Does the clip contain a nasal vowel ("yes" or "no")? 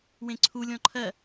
yes